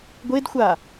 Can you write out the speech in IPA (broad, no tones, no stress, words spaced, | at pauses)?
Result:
ɡʷedxʷa